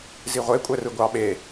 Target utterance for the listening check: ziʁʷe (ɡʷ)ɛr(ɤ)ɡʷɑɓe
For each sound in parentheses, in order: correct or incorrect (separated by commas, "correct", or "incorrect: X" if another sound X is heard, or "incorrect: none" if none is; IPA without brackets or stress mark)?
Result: incorrect: kʷʼ, incorrect: ɯ